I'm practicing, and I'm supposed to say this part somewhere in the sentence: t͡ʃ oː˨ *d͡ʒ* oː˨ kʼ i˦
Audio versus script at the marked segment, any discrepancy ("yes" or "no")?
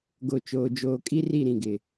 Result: no